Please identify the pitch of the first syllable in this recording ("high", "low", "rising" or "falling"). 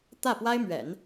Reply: falling